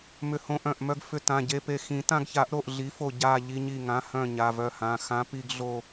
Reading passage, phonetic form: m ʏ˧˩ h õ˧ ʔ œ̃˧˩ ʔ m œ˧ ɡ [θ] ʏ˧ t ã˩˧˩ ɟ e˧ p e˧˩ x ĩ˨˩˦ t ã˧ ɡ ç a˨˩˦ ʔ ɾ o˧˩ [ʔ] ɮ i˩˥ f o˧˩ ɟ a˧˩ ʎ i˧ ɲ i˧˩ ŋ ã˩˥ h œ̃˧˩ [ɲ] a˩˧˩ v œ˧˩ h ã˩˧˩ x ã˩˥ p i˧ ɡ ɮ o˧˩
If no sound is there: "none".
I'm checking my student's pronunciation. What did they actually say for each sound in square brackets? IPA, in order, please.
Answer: f, ʔ, ɲ

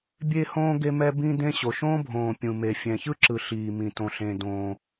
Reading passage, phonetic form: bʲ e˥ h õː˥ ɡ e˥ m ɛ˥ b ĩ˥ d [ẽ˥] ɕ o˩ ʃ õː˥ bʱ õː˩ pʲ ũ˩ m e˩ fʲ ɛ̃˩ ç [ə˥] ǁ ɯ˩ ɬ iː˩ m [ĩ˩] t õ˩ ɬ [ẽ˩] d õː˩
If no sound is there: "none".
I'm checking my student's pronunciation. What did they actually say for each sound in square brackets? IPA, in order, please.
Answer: ẽ˥, ɯ˥, ĩ˩, ẽ˩

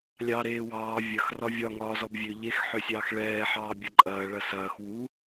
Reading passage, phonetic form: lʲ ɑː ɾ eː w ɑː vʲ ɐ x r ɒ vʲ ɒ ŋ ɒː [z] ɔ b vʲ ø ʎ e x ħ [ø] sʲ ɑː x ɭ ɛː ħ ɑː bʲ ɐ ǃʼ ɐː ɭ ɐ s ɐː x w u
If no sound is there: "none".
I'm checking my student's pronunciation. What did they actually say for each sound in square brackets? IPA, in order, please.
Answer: z, ø

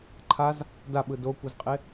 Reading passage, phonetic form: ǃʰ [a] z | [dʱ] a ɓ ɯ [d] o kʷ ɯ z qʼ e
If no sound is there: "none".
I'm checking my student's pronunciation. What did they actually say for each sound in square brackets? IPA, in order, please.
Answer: a, d, d

